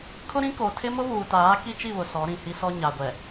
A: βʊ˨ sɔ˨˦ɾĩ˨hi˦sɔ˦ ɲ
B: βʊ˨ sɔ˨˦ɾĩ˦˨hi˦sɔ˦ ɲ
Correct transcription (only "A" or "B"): A